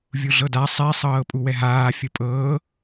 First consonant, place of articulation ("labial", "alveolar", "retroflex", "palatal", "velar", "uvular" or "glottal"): labial